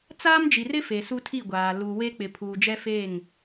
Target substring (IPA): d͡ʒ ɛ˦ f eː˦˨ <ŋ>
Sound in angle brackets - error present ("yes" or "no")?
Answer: no